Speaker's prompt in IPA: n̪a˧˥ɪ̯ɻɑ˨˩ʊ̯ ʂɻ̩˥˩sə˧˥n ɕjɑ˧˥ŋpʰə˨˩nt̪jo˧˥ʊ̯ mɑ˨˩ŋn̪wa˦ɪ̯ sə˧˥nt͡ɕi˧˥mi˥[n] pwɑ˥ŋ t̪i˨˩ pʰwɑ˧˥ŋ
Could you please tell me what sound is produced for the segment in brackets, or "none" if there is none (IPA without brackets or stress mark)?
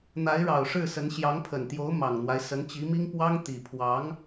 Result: ŋ